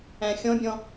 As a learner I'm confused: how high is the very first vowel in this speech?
low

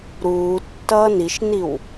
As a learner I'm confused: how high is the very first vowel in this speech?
high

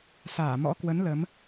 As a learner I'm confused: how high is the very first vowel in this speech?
low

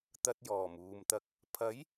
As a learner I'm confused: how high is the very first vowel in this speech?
low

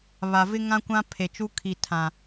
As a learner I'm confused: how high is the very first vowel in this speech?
low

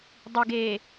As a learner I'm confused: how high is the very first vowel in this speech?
high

